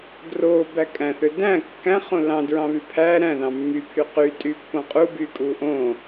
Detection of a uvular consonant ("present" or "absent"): present